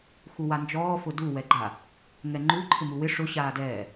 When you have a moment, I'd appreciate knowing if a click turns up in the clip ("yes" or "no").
yes